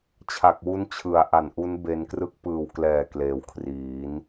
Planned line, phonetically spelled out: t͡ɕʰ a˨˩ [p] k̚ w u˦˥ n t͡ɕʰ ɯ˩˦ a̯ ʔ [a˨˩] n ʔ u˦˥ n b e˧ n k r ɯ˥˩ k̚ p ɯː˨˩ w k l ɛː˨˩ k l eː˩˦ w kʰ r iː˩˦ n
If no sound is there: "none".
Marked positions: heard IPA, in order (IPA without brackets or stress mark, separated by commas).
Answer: none, a˨˩